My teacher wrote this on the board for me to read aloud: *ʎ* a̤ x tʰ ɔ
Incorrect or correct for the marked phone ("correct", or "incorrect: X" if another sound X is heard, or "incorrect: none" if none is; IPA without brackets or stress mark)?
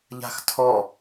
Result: correct